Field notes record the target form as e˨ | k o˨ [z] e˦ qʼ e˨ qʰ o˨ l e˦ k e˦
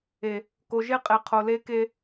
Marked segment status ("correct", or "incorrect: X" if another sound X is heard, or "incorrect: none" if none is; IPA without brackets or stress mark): incorrect: ʒ